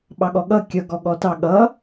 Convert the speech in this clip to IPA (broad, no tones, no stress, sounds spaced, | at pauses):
ɓ ɑ ɠ ɔ ɠ ʌ kʲ ʌ ɡ ɔ ɠ ɔ t ɑ ɠ ʌ